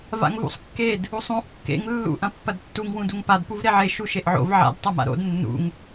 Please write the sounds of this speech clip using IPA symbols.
v a̰ ŋ v ṵ sˤ kː e d | u sˤ ũ ʔ kː ḛ ŋ lː ṵ ʔ ɐ̃ pː ɐ d tː u ŋ w ũ d u ŋ p a d p u v ɾ e ʕ e ʃ u ʃ e ʔ ʕ o̰ v ʕ a̰ d tˤ ɐ m a̰ ɾ o̰ d nː ṵ ŋ

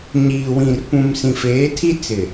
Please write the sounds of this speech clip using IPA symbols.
ɲ iː˨ w ĩ˨ r p ũ˨ m s ĩ˨ f eː˨˦ tʰ i˦ t͡s ɪ˨

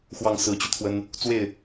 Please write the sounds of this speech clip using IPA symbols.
x w ɑ˥˨ ŋ s ɹ̩˨˦ t͡ɕ y˧ t̪ʰ w ə˦ n | t͡s w e˥˨ ɪ̯

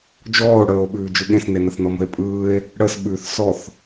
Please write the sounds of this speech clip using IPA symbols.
d͡ʒ ɔː o̯ ɽ əː o̯ ɓ ʉː d͡ʒ ɯ ɠ ẽ s n e n ə θ n ɔ m ə̤ e̯ pʼ ɯː e̯ | ɽ ə s ɓ ʉ θ s ɔ θ

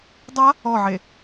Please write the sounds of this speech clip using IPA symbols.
dˤ a | ɔ ʕ e

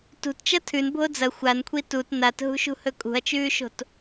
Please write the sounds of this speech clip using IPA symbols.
t ṳ t t͡ʃ ɐ tʰ ʉ n bʱ o d͡z ɐ xʷ a n kʷʰ i t u t n a t ɦ ṳ ʃ ṳ h ɵ kʼ ṳ ɐ̯ t͡ʃ ʉː ʃ o̤ t

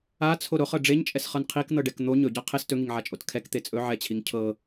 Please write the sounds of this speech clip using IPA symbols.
a t͡sʰ o ɾ o χ ɤ ɖ͡ʐ e ɲ t͡ʃʼ ɛ s χ ɤ n qʰ i k n̪ ɤ ɖ ɛ k n̪ o ɲ ɵ ɟ a qʰ e s t ɵ ŋ i ŋ ʕ a t͡ʃʼ o t kʰ ɛ k t̪ e t͡sʼ ɵ ʕ ɛ t͡ɕʰ i ŋ cʰ ɤ

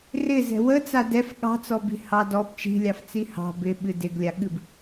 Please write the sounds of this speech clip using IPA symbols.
r ɪ z ɛ̤ w ə t͡s a d ɛ f ɠ ɑ̤ t͡s ɔ b i̤ h ɑ d ɔ b t͡ʃ i̤ lʲ ɑ f t͡s i h ɑ̤ b ɪ ɓ ɨ d ɪ ɡ lʲ a ɠ ɨ b

